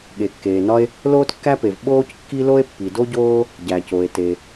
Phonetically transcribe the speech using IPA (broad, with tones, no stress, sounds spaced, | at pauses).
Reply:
ɠ e˩ kː eː˩ n ɒ˥ e̯ | l oː˥ t kː æ˥ p e˩ v ɓ oː˥ c kː i˥ l o˥ e̯ pː i˩ d o˥ ɟ oː˥ | ɟ æ˩ c o˩ e̯ t e˩